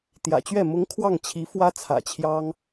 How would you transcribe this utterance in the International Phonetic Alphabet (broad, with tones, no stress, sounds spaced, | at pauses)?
t̪ j ä̰˨˩ t͡ɕ ɥ ɛ˥˩ m ʊ˧˥ ŋ kʰ w ɑ˥˩ ŋ t͡ɕʰ i˧˥ f w ä˥ t͡sʰ ä̰˨˩ t͡ɕʰ j ɑ˥ ŋ